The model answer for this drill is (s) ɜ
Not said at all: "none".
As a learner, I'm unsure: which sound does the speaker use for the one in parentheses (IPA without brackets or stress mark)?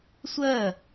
sʷ